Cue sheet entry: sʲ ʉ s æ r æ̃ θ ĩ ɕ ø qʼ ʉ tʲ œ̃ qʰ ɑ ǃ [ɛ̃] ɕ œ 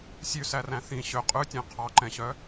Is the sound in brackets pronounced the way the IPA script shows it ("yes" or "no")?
yes